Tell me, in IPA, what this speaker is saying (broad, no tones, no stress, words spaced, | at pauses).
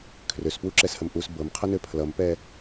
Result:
kʰrøspwuǁɛshəm ʔus bɤmqʰənø pʰlʌmpɛ